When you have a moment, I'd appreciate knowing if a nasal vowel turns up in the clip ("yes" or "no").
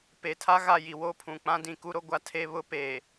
yes